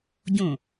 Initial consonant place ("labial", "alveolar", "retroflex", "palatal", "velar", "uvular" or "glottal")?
palatal